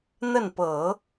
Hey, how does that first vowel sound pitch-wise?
falling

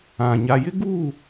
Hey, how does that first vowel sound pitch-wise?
low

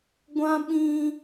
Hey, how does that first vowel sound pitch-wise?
high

